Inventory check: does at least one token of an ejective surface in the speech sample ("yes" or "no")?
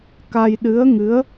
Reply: no